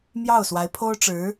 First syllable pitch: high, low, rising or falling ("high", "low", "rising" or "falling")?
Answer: falling